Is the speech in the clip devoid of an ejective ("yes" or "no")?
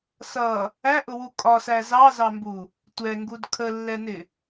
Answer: no